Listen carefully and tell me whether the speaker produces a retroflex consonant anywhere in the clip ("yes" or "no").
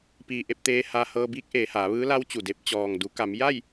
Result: no